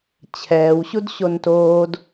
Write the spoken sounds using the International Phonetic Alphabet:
t͡ɕʰɛːwɕud ɕontoːd

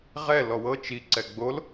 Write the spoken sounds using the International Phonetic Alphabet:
ʁɛ lɔwɤ t͡ʃi ǀɛɡ͡bol

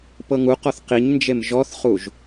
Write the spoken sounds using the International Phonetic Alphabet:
pɤŋuqɔθ qiɲnd͡ʒem ʒɔθχuʒ

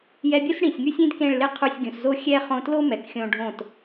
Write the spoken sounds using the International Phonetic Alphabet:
jɛ˧bʲu˦s ɽĩ˨sʲŋy˦sʲ ĩ˦dkẽ˦˨ɭlɪ˦ qʰu˧sʲɡʲũ˨szo˦ xʲɛ˦ χõ˧tlo˦ mɛ˨kxʲõ˧ɖʱõ˦˨t

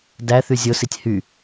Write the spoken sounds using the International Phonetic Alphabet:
dæθy zʲositʲ hy

